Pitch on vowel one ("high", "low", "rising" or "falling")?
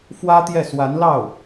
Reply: high